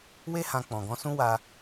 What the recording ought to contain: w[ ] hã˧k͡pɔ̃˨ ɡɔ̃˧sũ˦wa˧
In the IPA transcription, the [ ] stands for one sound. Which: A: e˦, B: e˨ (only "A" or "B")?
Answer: A